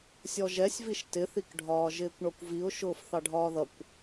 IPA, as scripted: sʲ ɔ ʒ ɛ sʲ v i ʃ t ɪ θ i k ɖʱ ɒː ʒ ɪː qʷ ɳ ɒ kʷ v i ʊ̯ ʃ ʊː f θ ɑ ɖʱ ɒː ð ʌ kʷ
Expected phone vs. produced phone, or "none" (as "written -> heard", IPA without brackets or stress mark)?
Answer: qʷ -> kʷ